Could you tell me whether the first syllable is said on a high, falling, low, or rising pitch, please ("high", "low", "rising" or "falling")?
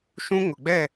high